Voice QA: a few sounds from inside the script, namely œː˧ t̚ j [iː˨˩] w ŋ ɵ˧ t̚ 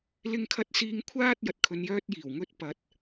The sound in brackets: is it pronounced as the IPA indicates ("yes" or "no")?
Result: yes